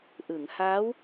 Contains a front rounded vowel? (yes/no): no